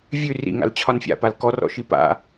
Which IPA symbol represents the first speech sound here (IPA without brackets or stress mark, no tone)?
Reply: vʲ